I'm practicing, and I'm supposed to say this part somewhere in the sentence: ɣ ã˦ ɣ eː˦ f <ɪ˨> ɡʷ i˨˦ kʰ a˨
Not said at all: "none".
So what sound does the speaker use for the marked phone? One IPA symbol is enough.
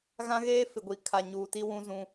ɪ˨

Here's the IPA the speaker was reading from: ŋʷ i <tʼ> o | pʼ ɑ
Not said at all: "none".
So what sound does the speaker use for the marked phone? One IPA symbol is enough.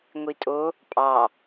tʼ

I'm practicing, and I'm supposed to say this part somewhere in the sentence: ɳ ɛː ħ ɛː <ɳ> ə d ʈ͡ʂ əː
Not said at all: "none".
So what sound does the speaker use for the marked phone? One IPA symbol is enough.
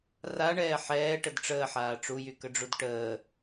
ʈ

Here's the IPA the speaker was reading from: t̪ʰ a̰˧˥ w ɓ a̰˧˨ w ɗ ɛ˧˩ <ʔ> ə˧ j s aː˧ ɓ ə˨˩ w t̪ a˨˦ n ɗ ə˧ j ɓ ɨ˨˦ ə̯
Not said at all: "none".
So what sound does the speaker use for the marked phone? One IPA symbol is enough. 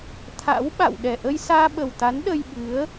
ʔ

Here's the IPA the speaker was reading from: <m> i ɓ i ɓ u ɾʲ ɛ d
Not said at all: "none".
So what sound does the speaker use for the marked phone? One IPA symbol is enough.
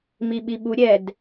m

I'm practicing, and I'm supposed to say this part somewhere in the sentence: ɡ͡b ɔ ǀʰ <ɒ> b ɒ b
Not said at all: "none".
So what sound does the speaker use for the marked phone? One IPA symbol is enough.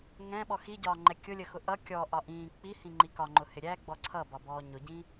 ʌ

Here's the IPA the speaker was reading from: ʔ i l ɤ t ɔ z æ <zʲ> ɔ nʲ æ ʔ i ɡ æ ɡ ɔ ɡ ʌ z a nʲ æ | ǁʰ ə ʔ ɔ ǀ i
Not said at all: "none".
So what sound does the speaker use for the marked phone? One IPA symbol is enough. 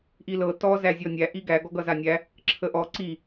zʲ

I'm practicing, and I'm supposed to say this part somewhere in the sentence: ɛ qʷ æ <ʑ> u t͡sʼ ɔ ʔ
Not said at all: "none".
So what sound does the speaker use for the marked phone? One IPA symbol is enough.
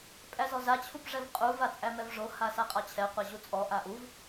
ʑ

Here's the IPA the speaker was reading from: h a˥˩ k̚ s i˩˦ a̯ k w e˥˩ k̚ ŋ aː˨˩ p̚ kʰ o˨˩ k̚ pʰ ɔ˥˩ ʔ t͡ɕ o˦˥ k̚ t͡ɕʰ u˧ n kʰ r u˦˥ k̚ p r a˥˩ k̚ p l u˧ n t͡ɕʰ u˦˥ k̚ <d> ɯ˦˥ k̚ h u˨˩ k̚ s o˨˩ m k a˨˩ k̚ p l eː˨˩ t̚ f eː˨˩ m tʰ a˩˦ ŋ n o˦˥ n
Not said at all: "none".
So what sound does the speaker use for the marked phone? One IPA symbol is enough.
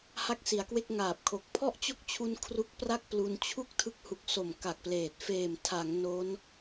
tʰ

